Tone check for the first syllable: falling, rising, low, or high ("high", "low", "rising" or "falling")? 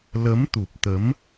rising